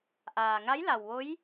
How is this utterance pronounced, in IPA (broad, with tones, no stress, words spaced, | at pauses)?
ʔaː˩ŋa˧˥j la˩wʋo˧˥j